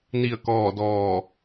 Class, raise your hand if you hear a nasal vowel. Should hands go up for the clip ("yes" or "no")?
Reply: no